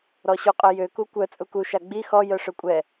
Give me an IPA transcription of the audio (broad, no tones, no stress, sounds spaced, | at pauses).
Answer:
ɾ ɔ ɕ u qʼ œ j ø k u kʷ œ t͡sʼ u k u ʃ a ɡ͡b i x ɔ j œ ʂ ø kʷʼ ɛ